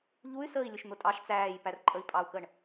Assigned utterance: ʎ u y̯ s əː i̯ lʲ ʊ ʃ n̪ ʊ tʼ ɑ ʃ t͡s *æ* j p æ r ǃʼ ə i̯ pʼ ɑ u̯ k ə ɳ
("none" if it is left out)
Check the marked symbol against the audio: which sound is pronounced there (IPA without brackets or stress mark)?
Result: æː